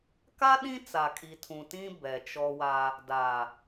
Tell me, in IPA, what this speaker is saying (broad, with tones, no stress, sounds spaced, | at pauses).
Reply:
k a˦ ɗ ĩ˦ t͡s a˨ kʼ i˨ tʰ ũ˨ t ĩ˦ b ɛ˨ t͡ʃ ɔ˦ w a˦ | d a˨